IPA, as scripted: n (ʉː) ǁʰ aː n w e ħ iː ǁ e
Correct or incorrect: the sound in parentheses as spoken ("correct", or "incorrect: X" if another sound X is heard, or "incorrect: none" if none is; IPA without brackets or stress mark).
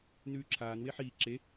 correct